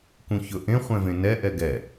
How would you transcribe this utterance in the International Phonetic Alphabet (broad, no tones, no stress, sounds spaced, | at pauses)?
k ũ ç ɵ ʔ ẽ χʷ ɛ̃ v ẽ n ɛ ʔ ɛ ɡ ɛ